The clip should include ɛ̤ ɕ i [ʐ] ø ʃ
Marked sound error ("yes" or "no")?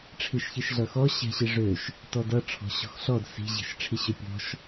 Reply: no